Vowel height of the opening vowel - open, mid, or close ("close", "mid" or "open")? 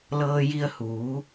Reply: mid